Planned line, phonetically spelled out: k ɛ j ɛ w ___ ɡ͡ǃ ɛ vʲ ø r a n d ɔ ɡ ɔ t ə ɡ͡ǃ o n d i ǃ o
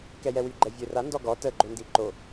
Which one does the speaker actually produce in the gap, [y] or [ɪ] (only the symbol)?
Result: y